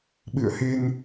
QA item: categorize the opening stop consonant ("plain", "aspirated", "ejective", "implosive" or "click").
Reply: implosive